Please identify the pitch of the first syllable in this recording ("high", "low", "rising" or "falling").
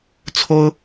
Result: high